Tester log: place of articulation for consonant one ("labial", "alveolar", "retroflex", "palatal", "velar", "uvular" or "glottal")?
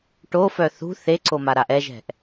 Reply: retroflex